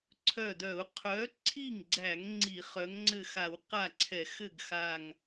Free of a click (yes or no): no